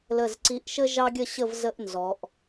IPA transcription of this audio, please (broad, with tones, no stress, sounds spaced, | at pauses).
l ə˧˩ z ǀ i˧ ʔ ʃ ə˥ ʒ ɑ˥ ɡʲ ə˥˧ ɕ ə˥˧ v z ə˥ ʔ n z ɔ˩˧ ʔ